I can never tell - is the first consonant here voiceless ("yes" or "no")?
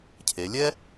yes